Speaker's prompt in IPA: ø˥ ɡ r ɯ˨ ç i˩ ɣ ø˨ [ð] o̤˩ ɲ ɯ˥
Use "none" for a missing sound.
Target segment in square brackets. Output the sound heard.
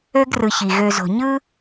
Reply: z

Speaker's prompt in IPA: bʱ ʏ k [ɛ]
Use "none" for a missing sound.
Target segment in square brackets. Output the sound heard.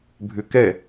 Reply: ɛ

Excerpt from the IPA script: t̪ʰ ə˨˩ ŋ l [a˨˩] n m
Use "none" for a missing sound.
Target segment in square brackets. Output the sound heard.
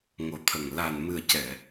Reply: a˨˩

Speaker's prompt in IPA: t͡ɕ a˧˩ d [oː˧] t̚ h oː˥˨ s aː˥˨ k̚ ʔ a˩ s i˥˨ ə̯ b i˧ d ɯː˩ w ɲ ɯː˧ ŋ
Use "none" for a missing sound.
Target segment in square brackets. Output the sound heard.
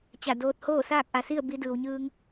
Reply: oː˧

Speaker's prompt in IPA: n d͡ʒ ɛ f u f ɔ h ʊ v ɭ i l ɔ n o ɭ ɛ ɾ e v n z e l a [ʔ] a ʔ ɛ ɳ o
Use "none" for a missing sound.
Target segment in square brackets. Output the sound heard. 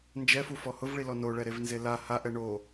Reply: h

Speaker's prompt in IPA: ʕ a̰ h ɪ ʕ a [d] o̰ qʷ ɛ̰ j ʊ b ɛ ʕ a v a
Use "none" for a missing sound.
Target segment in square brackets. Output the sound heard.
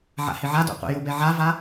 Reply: d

